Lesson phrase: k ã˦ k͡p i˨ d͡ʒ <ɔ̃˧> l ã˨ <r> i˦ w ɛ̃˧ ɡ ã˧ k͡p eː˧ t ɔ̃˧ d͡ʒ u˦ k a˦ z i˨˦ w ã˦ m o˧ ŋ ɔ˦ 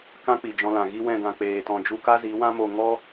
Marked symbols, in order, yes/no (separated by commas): yes, no